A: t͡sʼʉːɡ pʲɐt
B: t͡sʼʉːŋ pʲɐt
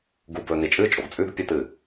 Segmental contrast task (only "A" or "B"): A